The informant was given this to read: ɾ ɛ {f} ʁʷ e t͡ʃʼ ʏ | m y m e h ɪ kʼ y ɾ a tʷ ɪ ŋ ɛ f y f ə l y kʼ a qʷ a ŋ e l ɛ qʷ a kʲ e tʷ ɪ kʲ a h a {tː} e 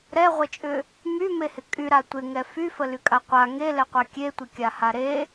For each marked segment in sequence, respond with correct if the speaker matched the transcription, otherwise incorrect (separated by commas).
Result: incorrect, incorrect